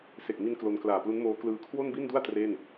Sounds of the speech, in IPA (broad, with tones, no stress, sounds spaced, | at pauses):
s e˨˩ k̚ m i˧ n k l o˧ n k l aː˨˩ p l u˦˥ n m oː˦˥ k l ɯː˦˥ kʰ w o˥˩ n b i˥˩ n d u˥˩ a̯ t r e˥˩ n